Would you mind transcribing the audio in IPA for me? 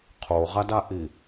qʰ o ʁ a d a ʔ i

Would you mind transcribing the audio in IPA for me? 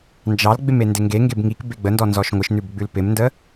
n d͡ʒ ɑ l ɡ͡b ɪ m e n d ɪ ŋ ɡ e ŋ ɡ e b ŋ i k b e ɡ͡b ə n d ɔ n z ɔ ʃ ŋʷ ɪ ʃ n ʉ b ɡ͡b ʉ l p ɪ m n d ə

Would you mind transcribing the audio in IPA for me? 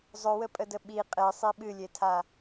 zˤ ɵ w ə pʼ ə d ə ɓ i qʼ e sˤ i ɓ ɨ lʲ e tʰ a

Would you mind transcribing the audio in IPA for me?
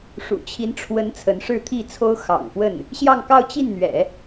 ʂ ṵ˨˩ t͡ɕʰ i˧˥ n ʈ͡ʂʰ w ə˧˥ n t͡sʰ ə˧˥ n ʂ ɻ̩˥˧ t̪ʰ i˥˩ t͡sʰ o˥ ʊ̯ x ɑ̰˨˩ ŋ f w ə˥˩ n | ɕ j ɑ˥˧ ŋ k ɑ˥˧ ʊ̯ t͡ɕ i˥˩ n n̪ ɥ ɛ̰˨˩˦

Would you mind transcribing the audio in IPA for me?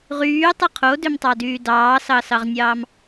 ʁ yː tˤ ɯ qʰ o d ø m tˤ ɑ d yː d ɑː s ɑ s ɑ ʁ nʲ ɑː m

